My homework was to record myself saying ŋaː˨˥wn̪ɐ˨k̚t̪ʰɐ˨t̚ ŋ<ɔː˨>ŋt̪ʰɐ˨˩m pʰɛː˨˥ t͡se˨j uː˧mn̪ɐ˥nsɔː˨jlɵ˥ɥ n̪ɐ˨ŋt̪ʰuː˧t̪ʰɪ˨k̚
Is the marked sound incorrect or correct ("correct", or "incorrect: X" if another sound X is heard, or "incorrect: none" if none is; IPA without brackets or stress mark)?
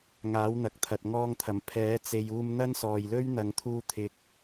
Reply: incorrect: ɔː˧